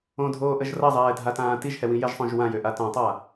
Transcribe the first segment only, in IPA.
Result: õ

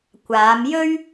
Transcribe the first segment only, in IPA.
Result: kʷ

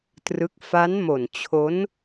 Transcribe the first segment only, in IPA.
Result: t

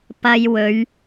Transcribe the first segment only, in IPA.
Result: p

